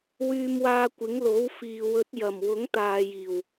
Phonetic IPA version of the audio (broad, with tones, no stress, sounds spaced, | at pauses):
w yː˧ m w aː˧ kʷ ɪ˨˥ ŋ l o˨˥ w f iː˨ w ɵ˨˥ t̚ j ɐ˨˩ m w ʊ˨˥ ŋ t̪ aː˨ j iː˨˩ w